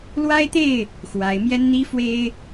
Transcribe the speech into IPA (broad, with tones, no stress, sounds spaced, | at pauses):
l w a˦ ɪ̯ t̪ e˥˨ ɪ̯ | x w a˨˦ ɪ̯ m j ɛ˦ n n̪ i˦ f w e˦ ɪ̯